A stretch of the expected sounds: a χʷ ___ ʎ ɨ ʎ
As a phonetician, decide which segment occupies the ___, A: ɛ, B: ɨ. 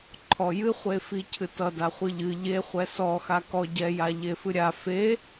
B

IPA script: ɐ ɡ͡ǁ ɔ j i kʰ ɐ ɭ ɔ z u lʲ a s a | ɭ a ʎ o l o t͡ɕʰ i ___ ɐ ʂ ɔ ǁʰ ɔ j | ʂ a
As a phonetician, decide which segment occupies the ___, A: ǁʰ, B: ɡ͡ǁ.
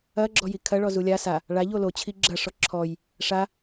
B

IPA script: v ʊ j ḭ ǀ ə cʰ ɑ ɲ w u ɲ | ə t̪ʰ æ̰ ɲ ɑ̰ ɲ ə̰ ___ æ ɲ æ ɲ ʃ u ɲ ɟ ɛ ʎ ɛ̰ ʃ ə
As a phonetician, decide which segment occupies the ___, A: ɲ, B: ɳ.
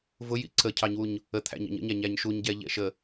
A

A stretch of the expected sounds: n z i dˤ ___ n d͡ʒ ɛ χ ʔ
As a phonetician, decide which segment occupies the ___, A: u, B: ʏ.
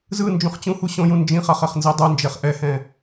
A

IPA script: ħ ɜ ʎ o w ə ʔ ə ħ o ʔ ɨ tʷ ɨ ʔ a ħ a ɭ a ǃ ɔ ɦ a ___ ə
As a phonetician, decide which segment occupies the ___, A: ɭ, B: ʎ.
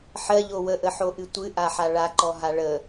A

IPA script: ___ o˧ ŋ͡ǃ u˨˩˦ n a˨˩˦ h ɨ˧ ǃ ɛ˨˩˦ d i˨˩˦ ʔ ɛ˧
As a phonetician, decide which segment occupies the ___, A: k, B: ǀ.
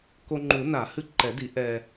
A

